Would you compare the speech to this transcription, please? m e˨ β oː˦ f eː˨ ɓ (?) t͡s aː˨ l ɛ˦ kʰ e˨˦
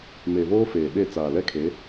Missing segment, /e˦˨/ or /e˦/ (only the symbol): e˦˨